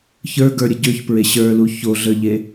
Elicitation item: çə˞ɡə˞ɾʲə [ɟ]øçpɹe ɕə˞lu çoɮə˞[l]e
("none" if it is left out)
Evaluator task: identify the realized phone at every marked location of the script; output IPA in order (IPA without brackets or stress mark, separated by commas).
ɟ, ʎ